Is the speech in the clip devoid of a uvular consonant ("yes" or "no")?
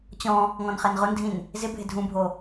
no